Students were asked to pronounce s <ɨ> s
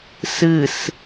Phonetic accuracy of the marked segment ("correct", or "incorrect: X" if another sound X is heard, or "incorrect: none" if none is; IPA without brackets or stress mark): correct